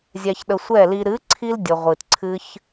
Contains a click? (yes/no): yes